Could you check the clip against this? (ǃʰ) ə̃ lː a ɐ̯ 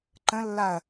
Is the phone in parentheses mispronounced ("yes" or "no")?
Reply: yes